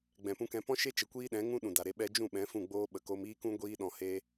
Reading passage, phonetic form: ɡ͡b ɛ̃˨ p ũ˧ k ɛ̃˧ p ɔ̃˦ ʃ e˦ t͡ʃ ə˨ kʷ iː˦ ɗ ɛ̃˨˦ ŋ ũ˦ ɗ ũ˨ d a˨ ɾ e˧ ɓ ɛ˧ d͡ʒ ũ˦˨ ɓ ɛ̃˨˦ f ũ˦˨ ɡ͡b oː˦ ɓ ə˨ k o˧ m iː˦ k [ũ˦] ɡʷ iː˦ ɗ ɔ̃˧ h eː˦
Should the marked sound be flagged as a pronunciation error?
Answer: no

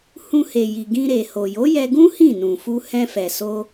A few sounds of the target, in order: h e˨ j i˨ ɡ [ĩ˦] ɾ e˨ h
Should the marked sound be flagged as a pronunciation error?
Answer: yes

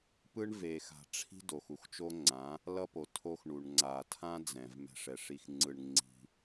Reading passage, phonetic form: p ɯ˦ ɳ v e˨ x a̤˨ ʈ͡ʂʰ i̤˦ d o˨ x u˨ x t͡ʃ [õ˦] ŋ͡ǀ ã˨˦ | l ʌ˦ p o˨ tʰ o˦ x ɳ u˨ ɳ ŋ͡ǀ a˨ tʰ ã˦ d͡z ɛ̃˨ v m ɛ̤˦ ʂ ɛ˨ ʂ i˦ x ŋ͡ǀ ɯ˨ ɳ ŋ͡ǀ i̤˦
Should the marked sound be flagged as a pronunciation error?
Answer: yes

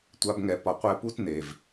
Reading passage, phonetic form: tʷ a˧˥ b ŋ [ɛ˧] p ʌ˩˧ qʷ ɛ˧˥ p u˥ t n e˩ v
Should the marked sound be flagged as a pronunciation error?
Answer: no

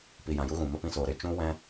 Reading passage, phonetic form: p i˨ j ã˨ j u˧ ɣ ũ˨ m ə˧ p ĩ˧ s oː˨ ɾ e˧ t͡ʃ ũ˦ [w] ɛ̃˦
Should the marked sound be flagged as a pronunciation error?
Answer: no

